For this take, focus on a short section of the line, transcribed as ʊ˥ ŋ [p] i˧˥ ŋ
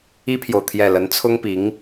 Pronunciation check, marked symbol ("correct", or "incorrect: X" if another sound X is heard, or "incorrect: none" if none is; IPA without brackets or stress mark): correct